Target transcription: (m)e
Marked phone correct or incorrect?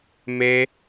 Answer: correct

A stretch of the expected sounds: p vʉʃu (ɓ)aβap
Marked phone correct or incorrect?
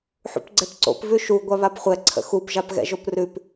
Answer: incorrect: ɡʷ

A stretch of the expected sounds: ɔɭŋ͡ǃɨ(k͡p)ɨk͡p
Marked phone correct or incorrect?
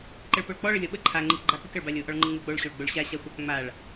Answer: incorrect: ŋ͡m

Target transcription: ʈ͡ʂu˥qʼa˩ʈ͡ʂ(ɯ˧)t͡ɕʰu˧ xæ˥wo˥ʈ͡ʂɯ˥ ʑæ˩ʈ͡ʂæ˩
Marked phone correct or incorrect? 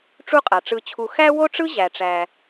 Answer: correct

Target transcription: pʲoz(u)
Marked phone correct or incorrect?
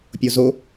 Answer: incorrect: o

